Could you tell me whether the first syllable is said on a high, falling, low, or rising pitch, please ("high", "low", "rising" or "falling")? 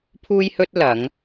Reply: high